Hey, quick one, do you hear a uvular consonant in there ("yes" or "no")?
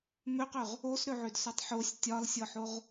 yes